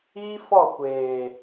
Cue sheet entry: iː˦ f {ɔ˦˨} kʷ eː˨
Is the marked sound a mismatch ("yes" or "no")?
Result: no